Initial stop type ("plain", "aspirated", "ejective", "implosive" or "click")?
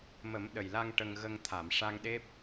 implosive